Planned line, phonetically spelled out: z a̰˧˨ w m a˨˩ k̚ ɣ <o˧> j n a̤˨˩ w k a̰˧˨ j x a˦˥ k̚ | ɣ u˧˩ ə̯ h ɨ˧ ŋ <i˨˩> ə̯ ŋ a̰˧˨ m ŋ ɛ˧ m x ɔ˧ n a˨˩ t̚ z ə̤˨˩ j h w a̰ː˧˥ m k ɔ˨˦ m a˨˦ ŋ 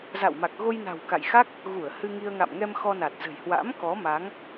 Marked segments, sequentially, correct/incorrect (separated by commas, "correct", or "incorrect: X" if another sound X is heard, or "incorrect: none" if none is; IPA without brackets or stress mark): correct, incorrect: i˧